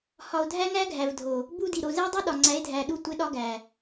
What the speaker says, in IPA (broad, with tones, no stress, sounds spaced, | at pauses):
h ɒ˨ o̯ dʱ æ˦ ŋ æ˦ ɡʱ æ˨ v dʱ o˨ | b u˦ d i˨ ɾ o˨ z e˦ dˤ i˦ ɗ ɒ˨ ŋ͡ǀ æ˨˦ e̯ dʱ æ˨ ɗ u˦˨ tʷ e˦ ɗ ɒ˦ ɡ æ˨